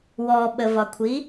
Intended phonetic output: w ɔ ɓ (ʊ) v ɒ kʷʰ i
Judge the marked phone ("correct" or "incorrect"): incorrect